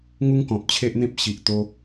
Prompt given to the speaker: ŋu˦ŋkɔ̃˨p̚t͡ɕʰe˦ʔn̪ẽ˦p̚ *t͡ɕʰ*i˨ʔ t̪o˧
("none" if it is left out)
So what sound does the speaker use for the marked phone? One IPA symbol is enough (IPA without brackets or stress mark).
ɕ